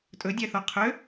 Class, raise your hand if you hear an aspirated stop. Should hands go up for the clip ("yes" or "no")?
yes